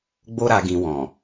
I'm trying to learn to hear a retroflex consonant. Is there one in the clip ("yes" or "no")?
no